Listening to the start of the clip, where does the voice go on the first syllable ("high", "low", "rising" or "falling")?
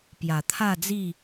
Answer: low